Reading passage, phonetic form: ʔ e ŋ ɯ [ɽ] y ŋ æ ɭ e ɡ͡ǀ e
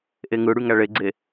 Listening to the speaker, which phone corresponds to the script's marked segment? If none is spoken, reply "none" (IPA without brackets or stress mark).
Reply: ɽ